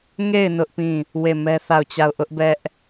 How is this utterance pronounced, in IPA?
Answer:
ŋ e˦˨ ɪ̯ n ʊ˦ ʔ p ĩ˦˨ | w e˦˨ m ɛ˦ θ a˦˨ ʊ̯ t͡ɕ a˦˨ ʊ̯ ʔ ʊ˦ ʔ b ɛ˦ ʔ

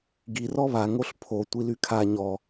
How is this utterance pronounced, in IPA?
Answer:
ɡ i r ɔ β a ŋ o ɬ pʰ o tʷ i l y kʰ a ɲ ɔ

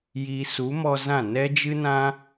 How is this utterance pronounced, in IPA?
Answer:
j i˧ s u˨˦ m ɔ˧ z ã˦˨ n ɛ˦ d͡ʒ ɨ˦ n ã˦

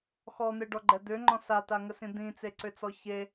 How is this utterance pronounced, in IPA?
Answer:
x ɔ n̪ e ɖ ɔ ɡ͡ǃ ɛ d̪ ʏ ŋ͡ǃ ɔ̃ s a t a ŋ ə s ĩ d̪ ĩ t͡s e ǀ ʏ t͡s ɔ ç e

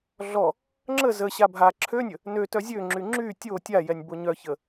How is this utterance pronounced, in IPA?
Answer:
ɮ ɔ | ŋ͡ǁ ə z ə ɕ a bʱ a ǁʰ ø nʲ ə | n ø t œ zʲ ø ŋ͡ǁ y ŋ͡ǁ y tʲ o tʲ a j ɛ nʲ b o ɲ œ ç ə

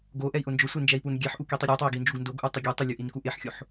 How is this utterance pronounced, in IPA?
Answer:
ɡ o ʔ ɛ i̯ ʔ ʊ n d͡ʒ ʊ sʷ e n d͡ʒ ɛ i̯ p u n ɡʲ ɛ ħ ʔ u k i tˤ i ɾʲ o tˤ e i̯ ɡ i n d͡ʒ u ɡ n d o ɡ ʔ u tˤ ɪ ɡʲ ɛ tˤ ʊ lʲ o ʔ i n k u ʔ e ħ xʲ o ħ

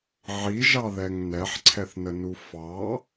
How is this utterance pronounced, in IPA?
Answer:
ʕ i ʒ ɑ ð ɛ ŋ n ɛ ħ ǀʰ ɛ θ n ə n u f ɑ

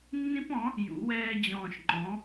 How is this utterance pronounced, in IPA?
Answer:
nː ĩ˦ p ɔ̃˩˥ | j ṵ˩˥ w ɛː˦ d͡ʑ ɔ̃ː˧˩ ʃ ŋ͡ǃ ɔ̃˩˥

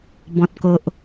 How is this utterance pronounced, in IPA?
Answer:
b ɔ̃˨ t̚ k o˨ ʔ

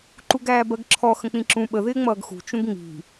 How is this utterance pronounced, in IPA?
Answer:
ǃ u ɡ æː b ɜ ɡ ǁʰ ɔ x ə̃ k͡p ĩ ǁ ũ ɓ ə ð ɪː ŋ͡m ʌː ɡ x ṳ t͡ʃ ũ ɡ ŋ͡m i̤

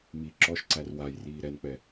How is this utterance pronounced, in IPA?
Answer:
m i ǁ ɔ ʃ ǀ æ r w a j r iː ɾ ɛ n k͡p ɛ

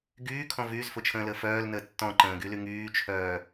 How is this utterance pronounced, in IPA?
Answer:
ɡ yː kʰ ɔ̃ v yː z f ʊ t͡ʃʰ ə̃ː l əː f œː l n əː tː ɔ̃ ǃ ə̃ː ɡ y l y ŋ yː t͡ʃʰ œː

